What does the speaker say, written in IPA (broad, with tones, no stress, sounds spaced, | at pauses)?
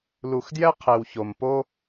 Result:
l u˩ x d j ɛ˥ qʰ e˩ w ç o˩ m p o˥